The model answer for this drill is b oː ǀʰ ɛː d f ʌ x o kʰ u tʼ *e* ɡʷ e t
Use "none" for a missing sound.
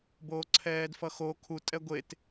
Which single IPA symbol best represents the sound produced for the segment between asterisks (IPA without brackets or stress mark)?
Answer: ɛ